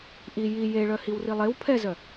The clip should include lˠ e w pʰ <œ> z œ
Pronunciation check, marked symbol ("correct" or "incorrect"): incorrect